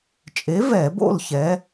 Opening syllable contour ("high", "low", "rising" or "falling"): rising